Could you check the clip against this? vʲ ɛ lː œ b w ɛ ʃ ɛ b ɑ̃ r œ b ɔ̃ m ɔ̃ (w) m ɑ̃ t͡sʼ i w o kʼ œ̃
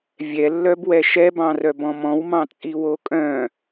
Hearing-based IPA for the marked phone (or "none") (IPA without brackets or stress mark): w